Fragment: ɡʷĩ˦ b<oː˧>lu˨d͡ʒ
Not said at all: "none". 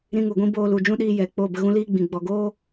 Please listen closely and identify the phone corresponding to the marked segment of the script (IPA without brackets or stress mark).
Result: oː˧